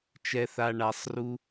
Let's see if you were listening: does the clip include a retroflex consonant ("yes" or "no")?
yes